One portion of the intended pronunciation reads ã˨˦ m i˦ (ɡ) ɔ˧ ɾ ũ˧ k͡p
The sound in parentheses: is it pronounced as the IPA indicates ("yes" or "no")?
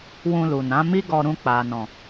yes